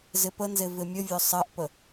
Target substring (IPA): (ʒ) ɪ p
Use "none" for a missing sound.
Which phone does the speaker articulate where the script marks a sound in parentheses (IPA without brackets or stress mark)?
z